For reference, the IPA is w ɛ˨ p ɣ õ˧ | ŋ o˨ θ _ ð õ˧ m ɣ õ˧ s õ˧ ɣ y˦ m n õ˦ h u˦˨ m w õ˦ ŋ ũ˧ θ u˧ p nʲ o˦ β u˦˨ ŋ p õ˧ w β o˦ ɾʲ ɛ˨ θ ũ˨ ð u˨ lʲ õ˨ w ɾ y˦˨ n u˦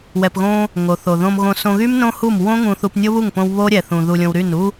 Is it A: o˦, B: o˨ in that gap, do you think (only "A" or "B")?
B